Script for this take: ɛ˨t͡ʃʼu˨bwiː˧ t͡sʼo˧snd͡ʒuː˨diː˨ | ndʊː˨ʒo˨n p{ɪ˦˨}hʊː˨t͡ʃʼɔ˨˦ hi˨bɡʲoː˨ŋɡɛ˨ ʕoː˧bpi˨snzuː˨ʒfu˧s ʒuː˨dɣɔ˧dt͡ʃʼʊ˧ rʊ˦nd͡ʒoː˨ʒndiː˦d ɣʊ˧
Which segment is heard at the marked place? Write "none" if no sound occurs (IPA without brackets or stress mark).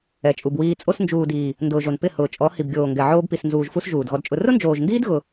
ɪ˦˨